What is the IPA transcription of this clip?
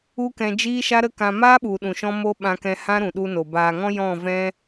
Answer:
u˦ k ɛ̃˧ d͡ʒ iː˦ ʃ a˦ ɾ ə˦ k ã˧ m aː˦ ɓ u˨ ɗ ũ˨ ʃ ɔ̃˦ m o˦ ɓ ã˧ k ɛ̃˧ h ã˦ ɾ ũ˨ ɗ u˧ n o˨ b aː˨ ŋ ɔ̃˦ j ɔ̃˦˨ v ɛ̃˦

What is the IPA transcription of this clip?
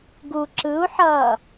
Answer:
ɡ u ǁ ɯ u̯ ħ ʌː

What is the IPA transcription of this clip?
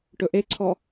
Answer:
ʈ ɵ ʔ e ǀʰ ɔ

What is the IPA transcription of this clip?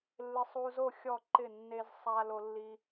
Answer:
lː ɪ˥ sˤ u˥ z o˥˧ xʲ ɔ˥˧ ǃ ɪ˥˧ nː e˥ z sˤ a˥ l o˥ lː i˥

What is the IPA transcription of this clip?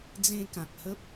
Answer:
d͡z ẽ˧ k ã˨ k̚ h ə˦ p̚

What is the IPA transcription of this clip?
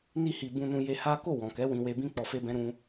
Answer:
n i˦ h i˧ b ũ˧ n ũ˧ j e˧ h a˦ k o˦˨ w ɔ̃˨ k ɛ˨˦ w ĩ˧ w e˧ b ĩ˦ k͡p ɔ˧ f e˦ b ɛ̃˦ ɾ ũ˧

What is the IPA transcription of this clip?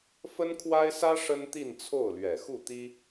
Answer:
f ə˥ n kʰ w a˥ ɪ̯ s ä˥ ʂ ə˥ n t̪ i˥˧ n t͡sʰ o˥˩ ʊ̯ l ɥ ɛ˨˩ x u˥˩ t̪ i˥

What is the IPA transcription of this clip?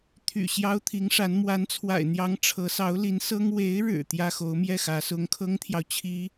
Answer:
t̪ʰ y̰˨˩ ɕ j ɑ˥ ʊ̯ t̪ʰ i˧˥ ŋ ʂ a˧˥ n m w a˧˥ n t͡sʰ w a̰˨˩ ɪ̯ n̪ j ɑ˧˥ ŋ ʈ͡ʂʰ ɤ˧˥ s ɑ˧˥ ʊ̯ l i˧˥ n s ɤ˥ ŋ w e˧˥ ɪ̯ ɻ ɻ̩˨˩ t̪ j ä˥ x o˧˥ ʊ̯ m j ɛ˥˩ x ä˧˥ s ʊ˧˥ ŋ kʰ ɤ˥ ŋ t̪ʰ j ɑ˨ ʊ̯ t͡ɕʰ i˥

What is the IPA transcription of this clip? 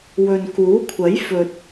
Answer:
w ɵ˨ n k uː˨˥ kʷʰ ɐ˨˥ j f ɵ˨ t̚

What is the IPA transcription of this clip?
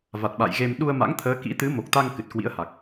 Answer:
v a˨˩ t̚ ɓ a̰˧˨ j ɣ e˧ m ɗ u˧ ə̯ m a̰˧˥ ŋ t̪ʰ əː˨˦ k ḭ˧˥ t̪ ɨ˨˦ m o˨˩ k̚ t̪ a˧ ŋ k ɨ˨˩ t̚ k w ḭ˧˥ ə̯ h a˨˩ k̚

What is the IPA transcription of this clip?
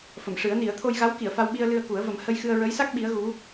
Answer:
f ə˨˩˨ m ʂ ɨ˨˩˦ ə̯ n i˨˩˦ ə̯ t̪ʰ o˧ j ɣ a˧˥ w k i˨˩˨ ə̯ f a˧ w ɓ i˧ ə̯ l ɨ˧ ə̯ k u˨˩˦ ə̯ v ə˨˩˦ m h ə˧ j x ɨ˧ ə̯ ɹ ə˧˥ j s a˦˥ k̚ ɓ i˧˥ ə̯ ɣ u˧˥

